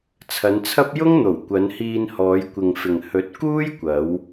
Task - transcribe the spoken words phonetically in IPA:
t͡sʰ ɐ˨˧ n t͡sʰ ɐ˥ p̚ j ʊ˥ ŋ n̪ o˨˩ w kʷ ɐ˨˧ n h iː˧ n h ɔː˨˧ j kʷ ɪ˨ ŋ f ɪ˨ ŋ h ɵ˨˥ t̚ k uː˥ j kʷ ɐ˨˧ w

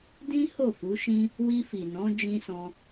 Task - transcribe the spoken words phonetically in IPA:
d ĩ˦ h o˦˨ f u˨˦ ʃ ĩ˦ | w i˧ f i˨ n ɔ̃˨˦ d͡ʒ ĩ˧ s ɔ̃˧

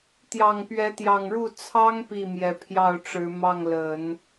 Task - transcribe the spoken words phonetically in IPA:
t̪ j ɑ˨˩ ŋ p ɥ ɛ˧˥ t̪ j ɑ˨˩ ŋ ɻ u˥˩ t͡sʰ ɑ˥ ŋ p i˥˩ m j ɛ˨˩ pʰ j ɑ˥˩ ʊ̯ ʈ͡ʂ ɻ̩˧˥ m ɑ˥˩ ŋ l ə˨˩˦ n

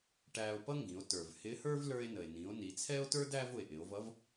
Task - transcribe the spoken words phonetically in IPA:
ʈ æː˧ o̯ p ʌ˥ ŋ ɡ ĩ˩˧ o̯ t ə˞˩ v h ɪ˧˥ h ə˞˥ v l ə˞˧ e̯ n ə˩ e̯ n ĩ˩˧ o̯ n i˩˧ t͡sʰ ɛː˥ o̯ t ə˞˥ d æ˥ v ʊ˩ e̯ ʔ ɪ˩˧ o̯ v ʌ˧˥ v

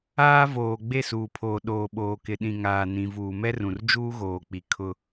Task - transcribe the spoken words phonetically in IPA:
aː˦ v oː˨ ɡ͡b e˦˨ s uː˨ pʰ oː˨ ɗ oː˨ ɓ oː˨ k ɪ˨ ɗ ĩ˨ ŋ aː˨ n ĩ˨ v uː˨ m ɛ˦ r ũ˨ r d͡ʒ uː˦ ɣ oː˨ k͡p i˨ kʰ ʊ˦

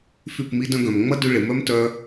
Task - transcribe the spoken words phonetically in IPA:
f y˦˨ p m i˦ d œ̃˧ ɡ œ̃˨ m ŋ͡m ɐ˦ d y˧ ɭ ɪ˨ m œ˦ m t œ˦

